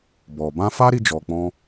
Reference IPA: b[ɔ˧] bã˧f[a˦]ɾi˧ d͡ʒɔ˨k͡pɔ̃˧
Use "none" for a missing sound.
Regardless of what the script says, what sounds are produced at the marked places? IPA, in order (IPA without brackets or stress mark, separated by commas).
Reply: ɔ˨, a˦